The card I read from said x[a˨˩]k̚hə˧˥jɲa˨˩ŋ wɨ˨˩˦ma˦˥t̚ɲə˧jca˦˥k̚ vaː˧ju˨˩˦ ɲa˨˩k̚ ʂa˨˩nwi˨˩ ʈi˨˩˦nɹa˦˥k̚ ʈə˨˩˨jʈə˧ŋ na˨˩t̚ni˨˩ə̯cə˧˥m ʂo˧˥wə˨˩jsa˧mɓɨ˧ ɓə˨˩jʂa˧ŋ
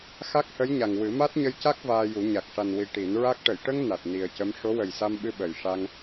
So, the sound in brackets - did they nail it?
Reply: no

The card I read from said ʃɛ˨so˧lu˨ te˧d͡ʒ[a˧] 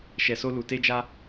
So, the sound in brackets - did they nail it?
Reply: yes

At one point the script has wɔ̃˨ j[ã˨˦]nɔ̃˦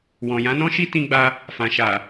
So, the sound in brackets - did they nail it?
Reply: yes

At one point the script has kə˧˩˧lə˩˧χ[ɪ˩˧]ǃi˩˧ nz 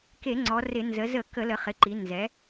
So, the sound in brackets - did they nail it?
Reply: yes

